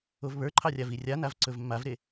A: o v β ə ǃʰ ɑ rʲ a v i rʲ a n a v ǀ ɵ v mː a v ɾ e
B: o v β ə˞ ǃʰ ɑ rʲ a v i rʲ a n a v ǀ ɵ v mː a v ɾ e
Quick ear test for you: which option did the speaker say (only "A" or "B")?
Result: B